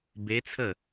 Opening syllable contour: rising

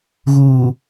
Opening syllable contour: low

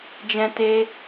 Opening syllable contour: high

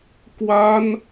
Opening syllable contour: high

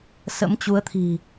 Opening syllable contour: rising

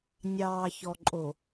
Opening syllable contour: low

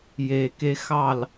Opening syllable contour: low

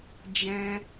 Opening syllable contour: high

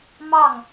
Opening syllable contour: falling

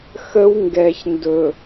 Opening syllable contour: high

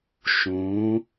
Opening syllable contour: rising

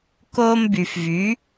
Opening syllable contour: high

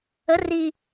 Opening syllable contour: rising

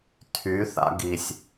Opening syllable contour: rising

